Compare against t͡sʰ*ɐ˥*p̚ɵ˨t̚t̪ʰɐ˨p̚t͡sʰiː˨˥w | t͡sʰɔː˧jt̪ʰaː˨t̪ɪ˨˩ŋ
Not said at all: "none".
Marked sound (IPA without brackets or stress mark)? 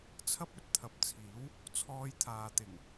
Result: ɐ˥